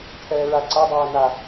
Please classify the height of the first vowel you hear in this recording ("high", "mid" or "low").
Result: mid